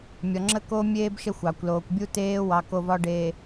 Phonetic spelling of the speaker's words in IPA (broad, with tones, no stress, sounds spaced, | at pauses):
mʲ ɒ˨ ŋ͡ǁ ə˦ k o˦ mʲ eː˦ b ʃ ə˦˨ xʷ ɑ˨ kʷ l oː˨ kʷ bʲ u˦ t eː˦ w ɑ˨ k o˨ v ɒ˨ ɖ eː˨